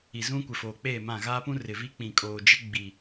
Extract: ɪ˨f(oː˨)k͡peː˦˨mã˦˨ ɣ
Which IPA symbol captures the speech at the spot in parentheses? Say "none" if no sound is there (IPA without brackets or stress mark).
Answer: oː˨